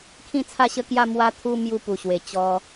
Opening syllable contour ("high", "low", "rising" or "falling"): falling